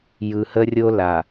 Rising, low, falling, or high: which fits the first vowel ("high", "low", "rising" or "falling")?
low